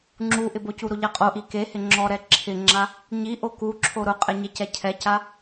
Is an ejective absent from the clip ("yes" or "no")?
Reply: no